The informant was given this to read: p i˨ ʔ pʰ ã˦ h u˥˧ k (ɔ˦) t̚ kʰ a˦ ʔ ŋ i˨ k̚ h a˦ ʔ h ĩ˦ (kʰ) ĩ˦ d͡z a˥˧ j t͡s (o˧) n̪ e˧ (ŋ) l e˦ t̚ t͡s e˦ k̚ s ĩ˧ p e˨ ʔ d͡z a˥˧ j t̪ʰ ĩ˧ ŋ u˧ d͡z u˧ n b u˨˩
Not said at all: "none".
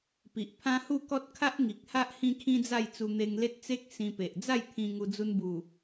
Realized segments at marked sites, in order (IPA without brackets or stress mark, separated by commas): ɔ˦, kʰ, u˧, ŋ